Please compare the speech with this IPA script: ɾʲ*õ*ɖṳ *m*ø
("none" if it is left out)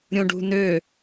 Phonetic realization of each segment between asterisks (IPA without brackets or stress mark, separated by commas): õ, n